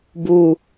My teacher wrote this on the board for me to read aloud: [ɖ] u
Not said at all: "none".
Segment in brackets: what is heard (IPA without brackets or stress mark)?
b